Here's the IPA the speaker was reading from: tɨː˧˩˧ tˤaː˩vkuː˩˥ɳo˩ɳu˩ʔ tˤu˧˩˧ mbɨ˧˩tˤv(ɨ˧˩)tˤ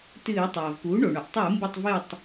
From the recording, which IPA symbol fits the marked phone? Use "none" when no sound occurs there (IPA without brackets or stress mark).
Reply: ɨ˧˩